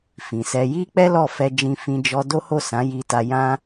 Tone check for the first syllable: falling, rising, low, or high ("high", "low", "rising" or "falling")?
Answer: low